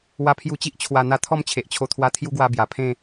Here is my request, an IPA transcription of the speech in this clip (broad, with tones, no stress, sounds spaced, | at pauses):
w a˧ pʰ j u˧ t͡ɕ i˦ ʔ t͡ɕʰ w a˨˩ n̪ a˧ t̪ʰ ɔ˥˧ m t͡ɕʰ e˨ ʔ t͡ɕʰ o˧ t̪ʰ w a˧ t̪ʰ j u˦ ɡ w a˧ b j a˨˩ pʰ ẽ˥˧